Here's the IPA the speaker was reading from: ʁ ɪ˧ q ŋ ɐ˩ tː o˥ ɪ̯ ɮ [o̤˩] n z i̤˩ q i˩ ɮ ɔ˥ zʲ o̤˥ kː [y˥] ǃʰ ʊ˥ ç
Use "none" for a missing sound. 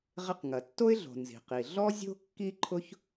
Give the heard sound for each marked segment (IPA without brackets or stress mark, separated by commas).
o̤˩, i˥